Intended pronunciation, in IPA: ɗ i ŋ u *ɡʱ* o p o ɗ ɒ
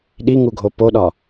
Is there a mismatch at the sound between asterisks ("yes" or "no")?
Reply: no